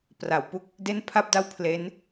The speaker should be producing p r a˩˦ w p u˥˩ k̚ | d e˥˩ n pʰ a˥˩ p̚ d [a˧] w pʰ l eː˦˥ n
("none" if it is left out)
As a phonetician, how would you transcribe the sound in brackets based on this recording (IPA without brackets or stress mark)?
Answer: a˥˩